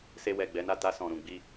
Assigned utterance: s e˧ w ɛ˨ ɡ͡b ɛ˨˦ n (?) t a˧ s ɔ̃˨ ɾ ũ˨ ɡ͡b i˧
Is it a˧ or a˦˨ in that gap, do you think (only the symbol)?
a˦˨